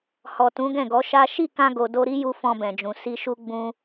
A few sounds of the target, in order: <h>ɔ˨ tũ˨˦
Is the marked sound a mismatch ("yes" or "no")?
no